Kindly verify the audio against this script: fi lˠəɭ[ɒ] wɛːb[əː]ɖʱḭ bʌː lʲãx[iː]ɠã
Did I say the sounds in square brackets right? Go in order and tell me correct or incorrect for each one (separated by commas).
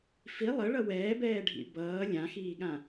incorrect, incorrect, correct